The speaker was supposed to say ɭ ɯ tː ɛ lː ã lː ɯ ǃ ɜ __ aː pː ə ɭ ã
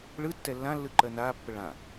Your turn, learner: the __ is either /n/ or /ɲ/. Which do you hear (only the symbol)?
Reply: n